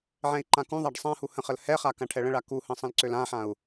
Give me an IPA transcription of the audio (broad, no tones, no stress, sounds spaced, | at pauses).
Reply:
ʕ ɛ̃ i̯ ǃ ã k ũ ðˤ a ɖ sˤ ã h u h ə̃ χ ə l h ɛ χ a k ã ʈʰ ɛ ɭ ə̃ ɭ a k u h ə̃ sˤ ə̃ l ǀ ø l ã ħ ã u̯